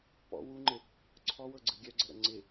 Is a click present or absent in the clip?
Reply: present